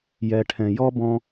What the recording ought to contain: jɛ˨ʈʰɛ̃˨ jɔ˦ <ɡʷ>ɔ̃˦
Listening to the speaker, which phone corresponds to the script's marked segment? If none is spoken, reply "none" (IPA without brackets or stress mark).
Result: b